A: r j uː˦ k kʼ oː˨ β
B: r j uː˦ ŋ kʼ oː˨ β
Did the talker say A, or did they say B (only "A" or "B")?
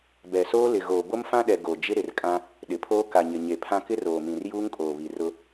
B